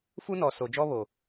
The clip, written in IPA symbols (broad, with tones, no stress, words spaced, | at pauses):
fu˦nɔ˨ so˨ d͡ʒɔ˦βo˨